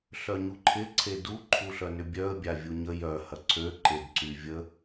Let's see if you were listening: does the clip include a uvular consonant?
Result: no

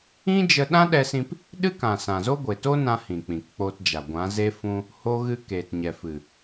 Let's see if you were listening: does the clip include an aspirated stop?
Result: no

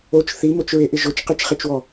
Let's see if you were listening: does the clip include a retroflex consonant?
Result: no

